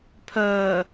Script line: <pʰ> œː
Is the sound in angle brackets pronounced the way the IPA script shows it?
yes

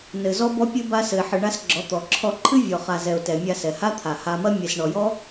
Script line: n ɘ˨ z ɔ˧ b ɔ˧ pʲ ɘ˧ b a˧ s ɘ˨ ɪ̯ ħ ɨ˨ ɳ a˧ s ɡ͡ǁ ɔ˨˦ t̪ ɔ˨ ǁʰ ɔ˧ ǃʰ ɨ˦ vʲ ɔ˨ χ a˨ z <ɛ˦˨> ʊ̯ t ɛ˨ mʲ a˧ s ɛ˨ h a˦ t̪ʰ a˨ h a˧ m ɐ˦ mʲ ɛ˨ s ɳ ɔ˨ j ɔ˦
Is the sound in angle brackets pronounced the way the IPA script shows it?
no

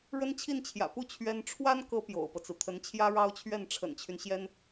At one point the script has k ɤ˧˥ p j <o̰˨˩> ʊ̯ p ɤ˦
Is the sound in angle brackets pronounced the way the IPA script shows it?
yes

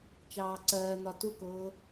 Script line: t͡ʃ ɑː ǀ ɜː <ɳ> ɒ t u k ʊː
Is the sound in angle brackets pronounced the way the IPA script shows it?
no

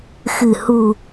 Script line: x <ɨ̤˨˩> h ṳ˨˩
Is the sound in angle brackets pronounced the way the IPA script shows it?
yes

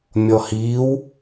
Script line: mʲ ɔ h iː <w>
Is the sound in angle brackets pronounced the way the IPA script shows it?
yes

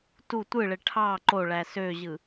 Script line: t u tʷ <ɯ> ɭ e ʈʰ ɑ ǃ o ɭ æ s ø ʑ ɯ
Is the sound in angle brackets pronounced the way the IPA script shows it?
yes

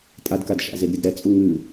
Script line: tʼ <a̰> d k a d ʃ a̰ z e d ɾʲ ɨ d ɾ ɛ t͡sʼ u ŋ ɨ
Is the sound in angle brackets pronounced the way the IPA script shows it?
no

